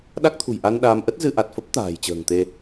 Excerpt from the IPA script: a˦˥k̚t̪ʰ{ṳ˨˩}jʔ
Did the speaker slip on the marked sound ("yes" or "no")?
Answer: no